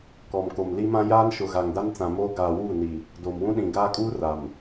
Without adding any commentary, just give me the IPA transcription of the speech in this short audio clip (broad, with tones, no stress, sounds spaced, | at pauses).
k ɔ˨ m k o˨ m l i˦ m ã˦ j aː˦ n ʃ ʊ˨ ɣ a˨ ŋ d a˦ n t͡s ã˨ m oː˦ ɡ aː˨ w uː˦˨ n i˨ | d o˨ m w ũ˦ ɗ ĩ˨ ɡ aː˦ kʼ uː˦ r a˨ m